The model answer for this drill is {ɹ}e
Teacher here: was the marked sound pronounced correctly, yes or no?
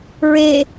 yes